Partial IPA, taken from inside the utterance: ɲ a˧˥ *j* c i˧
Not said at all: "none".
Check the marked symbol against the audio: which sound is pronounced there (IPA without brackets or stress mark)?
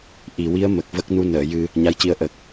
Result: j